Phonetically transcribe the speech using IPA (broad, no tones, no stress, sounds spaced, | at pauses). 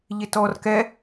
ʎ ɪ t ɔ r k ɛ